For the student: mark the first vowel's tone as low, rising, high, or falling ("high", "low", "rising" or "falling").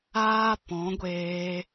high